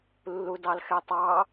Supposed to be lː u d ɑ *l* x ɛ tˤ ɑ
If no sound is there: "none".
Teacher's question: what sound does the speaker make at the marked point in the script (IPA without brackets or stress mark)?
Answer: l